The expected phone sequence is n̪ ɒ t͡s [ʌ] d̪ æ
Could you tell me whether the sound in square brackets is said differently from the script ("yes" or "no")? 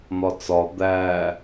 yes